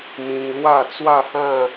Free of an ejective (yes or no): yes